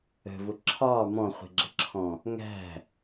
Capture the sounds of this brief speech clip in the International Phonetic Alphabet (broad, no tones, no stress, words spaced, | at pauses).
ə̤vʊ ǁʰɑ mɔ̃χʷi̤ɡ͡ǁə̤ǁʰɔ̃ | ŋæ̤